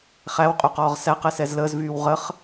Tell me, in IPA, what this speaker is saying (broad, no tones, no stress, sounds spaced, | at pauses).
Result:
χ æ w qʼ y q ɔː ʁ s æ q ɛ s ɛ z l əː z v yː w ʁ ə χ